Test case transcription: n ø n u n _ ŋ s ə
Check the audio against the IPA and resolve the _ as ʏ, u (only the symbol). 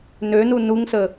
u